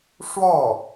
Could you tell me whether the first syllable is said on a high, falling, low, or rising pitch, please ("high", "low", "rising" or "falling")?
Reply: falling